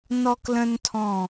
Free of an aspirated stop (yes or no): no